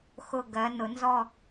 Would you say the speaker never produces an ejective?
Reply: yes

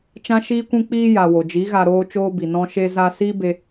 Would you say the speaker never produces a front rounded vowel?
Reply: yes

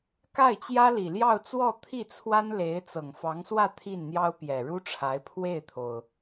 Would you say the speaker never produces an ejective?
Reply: yes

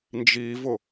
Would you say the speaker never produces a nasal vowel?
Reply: yes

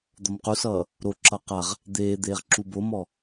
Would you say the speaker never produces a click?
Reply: no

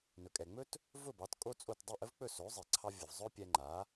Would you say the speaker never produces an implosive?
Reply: yes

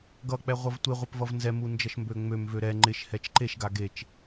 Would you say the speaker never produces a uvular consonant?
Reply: no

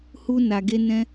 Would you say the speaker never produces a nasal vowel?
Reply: no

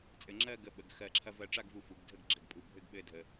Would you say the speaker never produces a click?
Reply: no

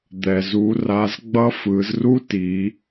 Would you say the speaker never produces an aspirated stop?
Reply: yes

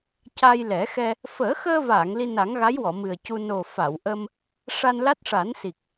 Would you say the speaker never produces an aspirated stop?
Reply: yes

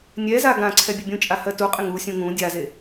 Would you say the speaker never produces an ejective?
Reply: no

